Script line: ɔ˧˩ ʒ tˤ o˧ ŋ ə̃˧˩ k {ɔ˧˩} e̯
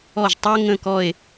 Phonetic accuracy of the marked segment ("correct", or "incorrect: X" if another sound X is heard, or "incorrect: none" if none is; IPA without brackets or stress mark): correct